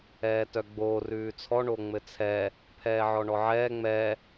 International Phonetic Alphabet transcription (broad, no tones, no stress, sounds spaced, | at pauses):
ɛː t œ ɡ͡b oː r ʉː t͡sʰ ɔ ɳ o ŋ͡m ɘ t͡sʰ ɛ | pʰ ɛː ʕ ɔ ɳ ɔ ʕ ɛː ŋ͡m ɛ